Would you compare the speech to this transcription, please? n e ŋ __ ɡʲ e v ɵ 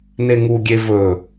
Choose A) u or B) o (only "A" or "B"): A